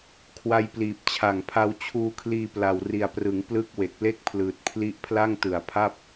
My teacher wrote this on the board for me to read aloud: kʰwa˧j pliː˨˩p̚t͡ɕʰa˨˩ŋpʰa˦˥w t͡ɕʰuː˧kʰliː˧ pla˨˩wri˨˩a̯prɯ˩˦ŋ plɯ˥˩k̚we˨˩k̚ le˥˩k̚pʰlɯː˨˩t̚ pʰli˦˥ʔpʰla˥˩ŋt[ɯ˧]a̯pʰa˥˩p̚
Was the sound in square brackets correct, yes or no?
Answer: no